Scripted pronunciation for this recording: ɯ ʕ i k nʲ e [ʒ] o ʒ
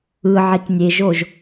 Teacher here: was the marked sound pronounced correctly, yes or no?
yes